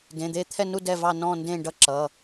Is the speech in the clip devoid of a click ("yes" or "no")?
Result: no